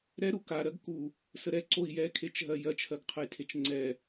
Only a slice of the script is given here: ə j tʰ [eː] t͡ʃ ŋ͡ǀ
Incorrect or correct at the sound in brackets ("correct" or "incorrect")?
incorrect